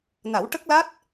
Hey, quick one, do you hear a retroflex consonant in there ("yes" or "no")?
yes